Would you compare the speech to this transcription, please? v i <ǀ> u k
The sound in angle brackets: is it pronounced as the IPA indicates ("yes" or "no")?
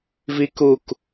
no